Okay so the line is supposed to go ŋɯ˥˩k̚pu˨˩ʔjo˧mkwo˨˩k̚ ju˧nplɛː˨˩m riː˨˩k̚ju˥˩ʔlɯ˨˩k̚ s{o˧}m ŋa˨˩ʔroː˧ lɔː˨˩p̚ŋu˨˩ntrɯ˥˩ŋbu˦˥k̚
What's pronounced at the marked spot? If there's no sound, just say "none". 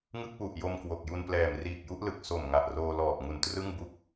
o˨˩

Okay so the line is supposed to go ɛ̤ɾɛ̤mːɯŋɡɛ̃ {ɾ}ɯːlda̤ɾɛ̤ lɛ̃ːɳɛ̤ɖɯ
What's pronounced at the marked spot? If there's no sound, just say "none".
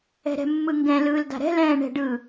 l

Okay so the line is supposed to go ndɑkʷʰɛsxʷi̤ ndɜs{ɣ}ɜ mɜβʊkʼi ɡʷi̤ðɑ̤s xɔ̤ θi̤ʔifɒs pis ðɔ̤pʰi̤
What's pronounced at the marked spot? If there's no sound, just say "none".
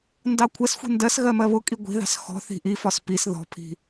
ɣ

